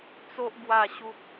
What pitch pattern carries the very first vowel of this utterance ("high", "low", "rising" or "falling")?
high